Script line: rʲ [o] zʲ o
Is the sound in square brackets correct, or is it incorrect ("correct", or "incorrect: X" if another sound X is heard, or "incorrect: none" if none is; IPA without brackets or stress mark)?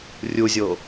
incorrect: u